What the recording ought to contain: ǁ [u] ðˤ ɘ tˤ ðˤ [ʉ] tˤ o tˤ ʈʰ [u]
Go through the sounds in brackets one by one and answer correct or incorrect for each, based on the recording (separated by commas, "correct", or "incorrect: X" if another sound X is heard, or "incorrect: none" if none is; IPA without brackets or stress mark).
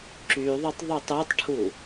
incorrect: y, incorrect: ø, correct